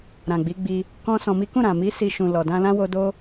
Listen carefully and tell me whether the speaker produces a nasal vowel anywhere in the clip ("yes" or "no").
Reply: yes